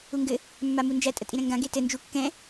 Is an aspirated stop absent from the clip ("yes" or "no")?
yes